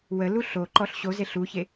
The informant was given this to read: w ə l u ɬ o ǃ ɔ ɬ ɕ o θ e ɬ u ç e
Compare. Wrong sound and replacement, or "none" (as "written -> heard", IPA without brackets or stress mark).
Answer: θ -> z